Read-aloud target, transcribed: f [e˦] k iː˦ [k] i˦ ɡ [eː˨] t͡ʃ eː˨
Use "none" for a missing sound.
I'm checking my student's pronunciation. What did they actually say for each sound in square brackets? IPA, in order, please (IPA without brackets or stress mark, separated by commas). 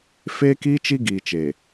eː˦, t͡ʃ, iː˨